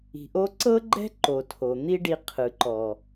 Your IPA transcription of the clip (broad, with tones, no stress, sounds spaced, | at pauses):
i̤˨ ʔ o˦ ǀ ɤ˦ ɡ͡ǃ ɛ̤˦ ǃ o˨ tʰ o˨ n̪ i˦ ɖ i˧ qʰ ɯ˨ ǃ ɔ˨